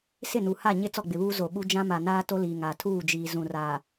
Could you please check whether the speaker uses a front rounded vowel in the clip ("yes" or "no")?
no